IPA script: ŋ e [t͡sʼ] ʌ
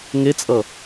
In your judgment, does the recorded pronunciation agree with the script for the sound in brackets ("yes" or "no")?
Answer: yes